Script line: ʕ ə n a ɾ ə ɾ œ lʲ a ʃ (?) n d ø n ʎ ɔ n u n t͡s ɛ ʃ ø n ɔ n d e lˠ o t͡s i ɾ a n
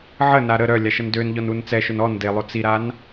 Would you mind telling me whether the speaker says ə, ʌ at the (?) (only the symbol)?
ə